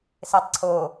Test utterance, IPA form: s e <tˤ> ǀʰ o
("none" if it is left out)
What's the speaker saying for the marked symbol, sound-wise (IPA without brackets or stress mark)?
tˤ